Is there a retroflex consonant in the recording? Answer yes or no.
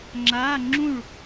yes